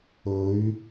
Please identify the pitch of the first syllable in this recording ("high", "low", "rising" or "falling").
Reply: rising